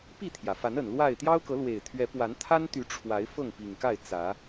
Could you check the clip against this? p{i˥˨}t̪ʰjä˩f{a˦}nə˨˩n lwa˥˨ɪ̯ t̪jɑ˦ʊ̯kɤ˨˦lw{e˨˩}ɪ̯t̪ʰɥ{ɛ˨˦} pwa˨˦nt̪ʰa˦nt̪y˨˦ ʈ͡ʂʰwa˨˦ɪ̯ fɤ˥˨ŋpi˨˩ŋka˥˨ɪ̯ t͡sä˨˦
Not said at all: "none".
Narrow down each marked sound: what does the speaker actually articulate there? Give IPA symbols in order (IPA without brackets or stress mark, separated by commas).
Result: i˥˨, a˨˦, e˨˩, ɛ˨˦